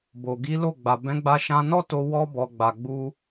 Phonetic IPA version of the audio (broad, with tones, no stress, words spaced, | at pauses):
bo˨ɡi˨˦lo˦˨ ɡ͡ba˨bɛ̃˨˦ɡ͡ba˧ ʃã˧nɔ˦to˧ wɔ˧bɔ˨ɡ͡ba˨ ɡ͡bu˧